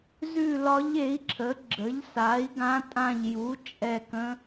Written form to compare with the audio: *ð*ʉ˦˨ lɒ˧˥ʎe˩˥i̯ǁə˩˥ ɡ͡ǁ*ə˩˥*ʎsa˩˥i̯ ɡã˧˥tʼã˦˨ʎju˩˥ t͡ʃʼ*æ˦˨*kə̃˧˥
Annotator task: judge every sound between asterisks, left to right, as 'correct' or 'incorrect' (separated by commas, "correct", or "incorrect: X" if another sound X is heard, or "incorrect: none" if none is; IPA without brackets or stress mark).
incorrect: z, correct, incorrect: ɛ˦˨